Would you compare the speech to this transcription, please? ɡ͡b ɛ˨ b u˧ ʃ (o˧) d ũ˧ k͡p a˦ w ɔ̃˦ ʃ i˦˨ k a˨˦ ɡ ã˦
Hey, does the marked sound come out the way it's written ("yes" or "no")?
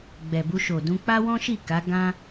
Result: no